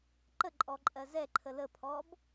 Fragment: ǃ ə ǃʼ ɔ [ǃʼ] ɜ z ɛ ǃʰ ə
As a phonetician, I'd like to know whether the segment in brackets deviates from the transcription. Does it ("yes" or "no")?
no